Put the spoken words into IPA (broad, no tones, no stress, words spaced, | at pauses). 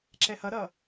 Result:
ǁɛhʌɾʌ